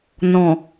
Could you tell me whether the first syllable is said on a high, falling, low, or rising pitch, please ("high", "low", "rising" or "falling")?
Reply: low